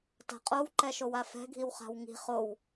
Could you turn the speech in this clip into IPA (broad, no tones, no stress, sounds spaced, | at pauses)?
t a̤ qʼ o w ǃ ɛ ʃ o w a f ɛ̤ ɡʱ i w χ a̤ w ŋ i̤ χ o w